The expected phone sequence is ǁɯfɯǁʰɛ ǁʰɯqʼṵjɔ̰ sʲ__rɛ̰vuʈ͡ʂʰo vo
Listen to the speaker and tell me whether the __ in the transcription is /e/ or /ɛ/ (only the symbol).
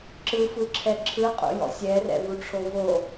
ɛ